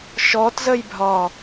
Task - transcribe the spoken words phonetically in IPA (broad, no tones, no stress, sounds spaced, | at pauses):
ʃ ɔ t z ə j bʱ ɒ